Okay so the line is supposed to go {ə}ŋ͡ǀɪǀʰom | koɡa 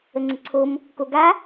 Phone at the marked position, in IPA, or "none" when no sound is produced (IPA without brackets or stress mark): ə